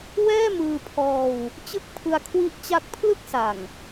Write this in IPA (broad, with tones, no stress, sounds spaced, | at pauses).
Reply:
w ɛː˥˩ m ɯː˧ pʰ ɔː˧ w | t͡ɕ ɯ˦˥ k̚ pʰ ɯ˧ a̯ kʰ w i˦˥ ʔ t͡ɕ a˦˥ k̚ pʰ l ɯ˥˩ k̚ s a˨˩ ŋ